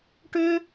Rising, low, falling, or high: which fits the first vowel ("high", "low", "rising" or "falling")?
high